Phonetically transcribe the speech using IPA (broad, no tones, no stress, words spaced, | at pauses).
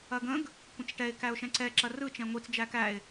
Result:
ɐɡə̃ɡ | kʷə̃t͡sʈɛɪ̯ kæʊ̯ʃɛ̃ǀɛ ǁɐrɯ t͡ʃɛ̃ŋʷit͡s d͡ʒækæɪ̯